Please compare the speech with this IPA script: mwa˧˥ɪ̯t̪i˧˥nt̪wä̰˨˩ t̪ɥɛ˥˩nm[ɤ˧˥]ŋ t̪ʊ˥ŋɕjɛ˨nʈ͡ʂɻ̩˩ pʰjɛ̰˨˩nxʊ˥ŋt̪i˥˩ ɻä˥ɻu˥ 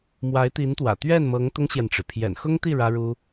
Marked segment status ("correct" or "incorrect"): correct